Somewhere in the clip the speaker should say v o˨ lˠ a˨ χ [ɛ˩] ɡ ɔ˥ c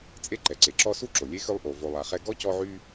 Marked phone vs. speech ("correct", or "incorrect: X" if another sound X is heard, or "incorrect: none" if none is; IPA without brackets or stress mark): incorrect: ɛ˦